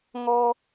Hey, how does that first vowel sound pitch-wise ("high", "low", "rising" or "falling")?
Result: high